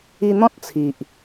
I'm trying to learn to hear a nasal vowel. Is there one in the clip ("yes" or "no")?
yes